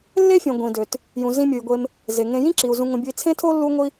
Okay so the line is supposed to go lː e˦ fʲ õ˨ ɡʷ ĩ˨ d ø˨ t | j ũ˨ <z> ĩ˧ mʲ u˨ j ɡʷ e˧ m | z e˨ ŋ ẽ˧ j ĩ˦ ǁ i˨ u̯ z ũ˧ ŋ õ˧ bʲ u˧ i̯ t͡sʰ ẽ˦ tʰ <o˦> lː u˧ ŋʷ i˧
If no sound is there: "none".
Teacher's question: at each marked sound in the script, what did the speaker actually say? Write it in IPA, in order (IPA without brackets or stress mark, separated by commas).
z, o˦